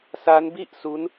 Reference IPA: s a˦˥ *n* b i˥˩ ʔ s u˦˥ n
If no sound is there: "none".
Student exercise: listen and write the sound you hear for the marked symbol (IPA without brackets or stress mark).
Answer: n